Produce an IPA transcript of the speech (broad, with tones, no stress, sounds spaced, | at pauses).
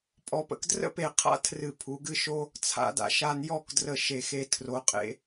pʼ ɔ˧ p ə̰˧ k d r ə̰˥ p e˧˩ qʰ a̰˥ tʰ r ɨ˧˩ pʰ u˩˧ ɡ ɨ˥˧ ʃ o˥ | t͡sʰ a̰˧ d a̰˧ ʃ a˧ n j ɔ˥˧ k d r ə˧˩ ʃ e˧˩ x e˧ tʰ r o˩˧ qʼ ḛ˧